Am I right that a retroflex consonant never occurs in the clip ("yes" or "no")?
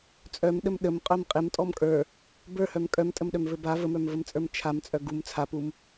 yes